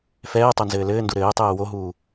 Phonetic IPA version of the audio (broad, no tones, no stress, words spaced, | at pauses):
fɛː tˤonzɘːlɘːndu ɾɘːtˤɛː woɦuː